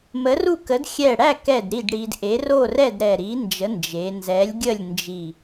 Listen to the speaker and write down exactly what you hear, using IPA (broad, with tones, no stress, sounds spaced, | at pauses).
m ə˨˥ r u˥˨ k ə˨˥ d xʲ ɛ˧˩ ɽ æ˥˨ k ɛ˧˩ d ɾ i˥˨ d ɽ i˧ d ʔ e˨˥ r o˥˨ r ɛ˥˨ d ɾ ɛ˧˩ ɾ i˨˥ n d͡ʒ ə˨˥ n d͡ʒ e˩˧ n z ɛ˨˥ lʲ ɡʲ ə˥˨ lʲ n d͡ʒ i˧˩